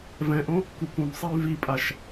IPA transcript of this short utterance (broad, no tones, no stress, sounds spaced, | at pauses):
v ɛ̃ ʔ õ | k u k ũ b sˤ ɛ y̯ v i pʼ a ʃ